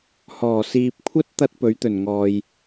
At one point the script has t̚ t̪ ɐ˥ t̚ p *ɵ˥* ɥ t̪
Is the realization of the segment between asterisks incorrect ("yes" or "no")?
yes